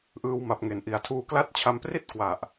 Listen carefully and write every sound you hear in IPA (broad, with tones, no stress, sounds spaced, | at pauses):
ʔ ɯː˧ w m a˨˩ p̚ ŋ e˩˦ n ʔ i˨˩ a̯ tʰ uː˧ k l a˦˥ t̚ t͡ɕʰ a˧ m p r i˥˩ t̚ k w a˨˩ ʔ